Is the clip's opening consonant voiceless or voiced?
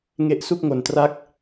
voiced